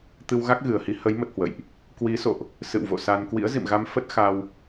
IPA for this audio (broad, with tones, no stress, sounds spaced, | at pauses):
t̪ ɨ˧ w ɣ a˦˥ k̚ ɣ ɨ˨˩ ə̯ h i˧ h ə˨˦ j m ə˦˥ t̚ h w ə̰˧˨ j ʔ | k w i˨˦ s o̰˧˨ ʔ | s ɨ̰˧˨ w v o̰˧˨ s a˧ n k w ḭ˧˥ ə̯ z ḭ˧˨ m ɣ a˧ m f ə˦˥ t̚ x a˧ w